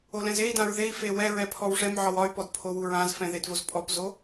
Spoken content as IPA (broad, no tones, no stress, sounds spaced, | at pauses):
o l ɛ̃ z e i̯ d ã ɹ ð e i̯ f e w ɛ ɹ ɛ pʰ ɔ w ʂ ɛ m ʕ ɒ w ɒ y̯ p ɔ d pʰ o w u ɹ ã z f ɛ̃ ð e d v o z pʼ ɔ p z o